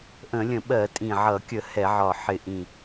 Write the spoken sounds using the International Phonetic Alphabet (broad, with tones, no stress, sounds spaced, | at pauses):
ʔ ə̃˧˩˧ lʲ ə̃˧˩˧ ɓ ɜ˧˩˧ tʼ ĩ˨˩ ʕ ʌ˧˩˧ kʲ ə˧˩˧ h ɛ˧˩˧ ʕ ɒ˨˩ ħ ɪ˨˩ ʔ ĩ˨˩